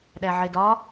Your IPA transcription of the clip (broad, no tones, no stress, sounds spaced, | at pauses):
ɗ æ ʕ e d ɒ